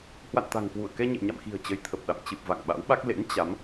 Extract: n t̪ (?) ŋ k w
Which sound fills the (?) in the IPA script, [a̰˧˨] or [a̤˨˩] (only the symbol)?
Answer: a̤˨˩